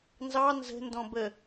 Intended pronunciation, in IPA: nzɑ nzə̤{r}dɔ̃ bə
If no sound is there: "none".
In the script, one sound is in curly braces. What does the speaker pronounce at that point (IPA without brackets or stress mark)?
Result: n